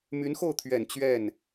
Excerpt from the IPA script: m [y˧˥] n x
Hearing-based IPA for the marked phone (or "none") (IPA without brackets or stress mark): y˧˥